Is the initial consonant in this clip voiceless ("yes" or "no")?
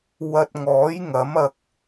no